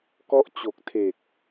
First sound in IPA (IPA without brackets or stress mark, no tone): k